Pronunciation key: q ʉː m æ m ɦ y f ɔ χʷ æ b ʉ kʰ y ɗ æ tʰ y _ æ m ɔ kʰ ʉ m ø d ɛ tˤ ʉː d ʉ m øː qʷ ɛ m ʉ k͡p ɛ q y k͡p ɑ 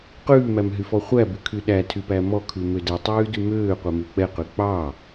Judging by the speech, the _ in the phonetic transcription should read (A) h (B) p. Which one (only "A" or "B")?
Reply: B